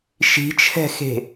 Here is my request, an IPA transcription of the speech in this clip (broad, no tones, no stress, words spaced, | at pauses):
ʃi̤t͡ʃʰɛ̤xe̤